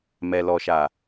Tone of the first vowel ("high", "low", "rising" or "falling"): low